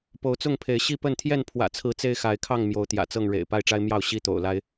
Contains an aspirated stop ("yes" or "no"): yes